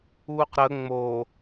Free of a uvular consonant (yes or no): no